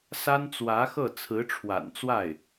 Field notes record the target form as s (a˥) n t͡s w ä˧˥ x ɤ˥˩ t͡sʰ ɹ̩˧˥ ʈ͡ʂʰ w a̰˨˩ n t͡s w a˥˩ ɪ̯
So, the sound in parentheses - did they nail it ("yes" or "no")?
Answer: yes